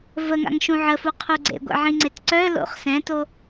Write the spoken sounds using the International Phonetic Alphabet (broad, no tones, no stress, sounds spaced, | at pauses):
v ə ŋ a̰ ŋ ʃ ũ ʕ ə f u qʰ u ɡ͡ǀ ḛ ɡʷ ɛ̰ ʕ ĩ ŋ͡ǀ e t ǀ œ l o̰ χ s ɛ̃ t o